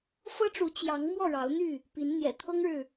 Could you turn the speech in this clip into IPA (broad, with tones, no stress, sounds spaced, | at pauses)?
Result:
f ɤ˦ ʈ͡ʂ u˨˦ t͡ɕ j ɑ˨˦ ŋ m w ɔ˥˨ ɻ ɑ˨˦ ʊ̯ n̪ y˥˨ | p i˨˦ n n̪ j ɛ̰˨˩ t̪ʰ ɤ˦ ŋ ɻ ɻ̩˨